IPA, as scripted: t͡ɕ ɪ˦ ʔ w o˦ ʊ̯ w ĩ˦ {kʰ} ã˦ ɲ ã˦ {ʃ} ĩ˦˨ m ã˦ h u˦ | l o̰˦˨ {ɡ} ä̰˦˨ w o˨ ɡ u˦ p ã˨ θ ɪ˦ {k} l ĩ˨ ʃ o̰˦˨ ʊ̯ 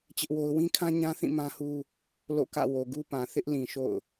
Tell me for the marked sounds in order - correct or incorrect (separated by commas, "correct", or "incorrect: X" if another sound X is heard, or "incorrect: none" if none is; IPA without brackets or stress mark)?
correct, incorrect: θ, incorrect: k, incorrect: ʔ